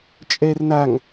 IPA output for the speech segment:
t͡ʃʼ ɛ r n a ŋ

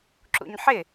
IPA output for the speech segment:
ǁ ṵ ɲ ħ ɪ

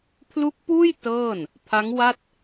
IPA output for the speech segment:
pʰ l u˦˥ k̚ p uː˥˩ j t ɤː˥˩ n | pʰ a˦˥ ŋ w a˥˩ t̚

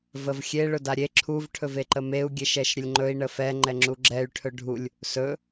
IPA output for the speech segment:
v ə v xʲ e ɭ ɵ d a ɾʲ e ǁʰ u v ʈʰ ɵ v e ǃ ə m e u̯ ɡʲ e ʃ ɛ ʃ ɾʲ ə lʲ ŋ͡ǃ ɵ i̯ ɳ ə f ɛ ŋ͡ǃ ɛ ŋ͡ǁ u ɡ͡ǁ ɛ y̯ ʈʰ ɵ ɖʱ u lʲ | s ɵ

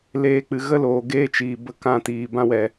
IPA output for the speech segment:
l eː˧ k͡p ɨ˨ ɣ ə˦ l oː˨ ɡ eː˦ t͡ʃ iː˨ b ə˧ k ã˦˨ t iː˨ b ã˧ w ɛ˨

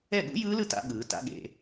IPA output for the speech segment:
ɛ˥˩ ɠ ṵ˦˥ j ɯː˦˥ l ɯ˦˥ t a̰˦˥ ɠ ɯː˨˦ t a̰˦˥ ɠ ḛ˨˦

